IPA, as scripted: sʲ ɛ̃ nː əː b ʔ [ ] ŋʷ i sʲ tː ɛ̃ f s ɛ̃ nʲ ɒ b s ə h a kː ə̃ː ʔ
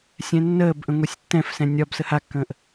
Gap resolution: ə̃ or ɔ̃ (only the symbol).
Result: ə̃